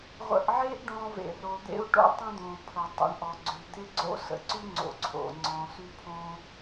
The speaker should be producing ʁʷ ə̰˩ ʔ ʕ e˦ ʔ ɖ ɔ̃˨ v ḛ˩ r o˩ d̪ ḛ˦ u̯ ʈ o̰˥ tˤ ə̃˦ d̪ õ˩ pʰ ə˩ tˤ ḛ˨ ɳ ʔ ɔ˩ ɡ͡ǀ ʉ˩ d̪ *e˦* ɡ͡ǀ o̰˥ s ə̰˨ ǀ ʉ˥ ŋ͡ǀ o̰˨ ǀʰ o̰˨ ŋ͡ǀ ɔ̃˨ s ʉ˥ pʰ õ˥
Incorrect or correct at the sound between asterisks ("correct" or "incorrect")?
correct